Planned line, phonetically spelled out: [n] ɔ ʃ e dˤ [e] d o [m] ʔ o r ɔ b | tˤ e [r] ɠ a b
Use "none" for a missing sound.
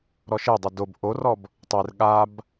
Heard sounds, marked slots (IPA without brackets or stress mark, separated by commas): ɾ, i, b, r